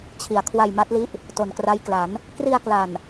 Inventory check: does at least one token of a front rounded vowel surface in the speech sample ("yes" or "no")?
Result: no